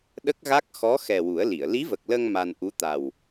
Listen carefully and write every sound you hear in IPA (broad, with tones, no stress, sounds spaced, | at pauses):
ɗ ə˦˥ k̚ ɣ a˦˥ k̚ x ɔ˧˥ x ɛ˨˩ w u˨˩˦ ə̯ l i˨˩˨ ə̯ l i˧˥ v ə˨˩ k̚ l ə˧ ŋ m a˧ n ʔ u˧˥ t̪ a˨˩ w